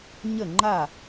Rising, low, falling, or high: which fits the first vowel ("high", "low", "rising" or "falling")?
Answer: falling